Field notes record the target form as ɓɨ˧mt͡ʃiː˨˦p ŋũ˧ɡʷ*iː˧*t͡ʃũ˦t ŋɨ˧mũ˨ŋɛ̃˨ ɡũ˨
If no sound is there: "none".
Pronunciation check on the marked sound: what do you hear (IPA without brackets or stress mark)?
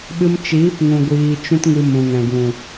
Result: iː˧